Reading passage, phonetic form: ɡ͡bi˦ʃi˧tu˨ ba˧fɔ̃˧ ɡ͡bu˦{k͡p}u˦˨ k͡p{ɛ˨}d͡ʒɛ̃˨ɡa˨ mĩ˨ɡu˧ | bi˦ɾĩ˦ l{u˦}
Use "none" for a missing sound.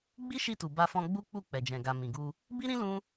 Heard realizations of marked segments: k͡p, ɛ˨, ũ˦

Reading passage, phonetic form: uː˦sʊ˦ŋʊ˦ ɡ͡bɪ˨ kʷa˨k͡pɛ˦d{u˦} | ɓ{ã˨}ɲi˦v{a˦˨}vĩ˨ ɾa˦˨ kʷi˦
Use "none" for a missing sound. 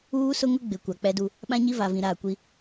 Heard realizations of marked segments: u˦, ã˦, a˨

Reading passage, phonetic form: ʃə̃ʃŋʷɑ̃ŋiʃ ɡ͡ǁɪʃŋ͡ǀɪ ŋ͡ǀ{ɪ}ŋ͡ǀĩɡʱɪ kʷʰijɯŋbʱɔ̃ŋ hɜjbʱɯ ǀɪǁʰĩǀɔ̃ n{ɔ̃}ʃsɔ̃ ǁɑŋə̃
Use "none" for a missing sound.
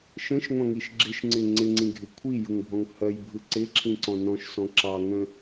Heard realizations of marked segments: ɪ, ɔ̃

